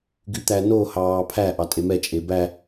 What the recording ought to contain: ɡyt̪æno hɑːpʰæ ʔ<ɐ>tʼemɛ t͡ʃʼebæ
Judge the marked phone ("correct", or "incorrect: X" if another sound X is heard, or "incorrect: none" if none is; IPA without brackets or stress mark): incorrect: ɑ